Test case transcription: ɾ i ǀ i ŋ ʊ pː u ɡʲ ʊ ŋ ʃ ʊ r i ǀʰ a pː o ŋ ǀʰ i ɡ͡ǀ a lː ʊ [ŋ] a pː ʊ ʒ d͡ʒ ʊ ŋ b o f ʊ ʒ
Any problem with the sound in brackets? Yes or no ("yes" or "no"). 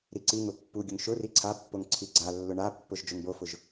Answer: yes